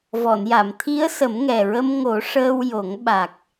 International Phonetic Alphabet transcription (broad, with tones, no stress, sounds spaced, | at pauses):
v ɔ˨˩˨ n j a˨˩˨ m t̪ʰ i˧˥ ə̯ s ə˨˩˦ m ŋ ɛ˨˩ ɹ ə˧ m ŋ o˨˩˦ ʂ əː˧ w j o˨˩˦ ŋ ɓ a˨˩ k̚